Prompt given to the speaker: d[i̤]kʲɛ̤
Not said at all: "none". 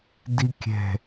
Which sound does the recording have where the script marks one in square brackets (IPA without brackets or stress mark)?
i